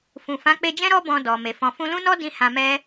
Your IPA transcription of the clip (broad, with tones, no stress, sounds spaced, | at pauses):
f ũ˨ f ã˨˦ k͡p e˧ d͡ʒ ɛ̃˦ ɾ ɔ˦ b ɔ̃˧ d ɔ˨ m e˨ f ɔ̃˨ f ũ˧ l ũ˦ n ɔ˦ d ĩ˦ h ã˧ m ɛ˦